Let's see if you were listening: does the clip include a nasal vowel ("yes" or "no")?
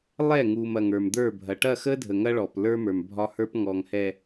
no